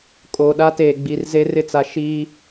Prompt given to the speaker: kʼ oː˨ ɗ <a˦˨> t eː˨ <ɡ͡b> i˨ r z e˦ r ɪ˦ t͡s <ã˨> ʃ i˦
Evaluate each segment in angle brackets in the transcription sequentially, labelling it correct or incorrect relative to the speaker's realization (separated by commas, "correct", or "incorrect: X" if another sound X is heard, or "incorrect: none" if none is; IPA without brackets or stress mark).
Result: incorrect: a˦, correct, incorrect: a˨